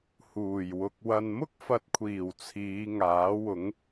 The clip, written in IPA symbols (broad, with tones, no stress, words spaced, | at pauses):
huː˨˩j wʊ˨k̚ wɐ˨nmʊ˥k̚fɐ˨t̚kʷʰiː˨˩w t͡sʰiː˨˧ŋaː˨˥wʊ˨˥ŋ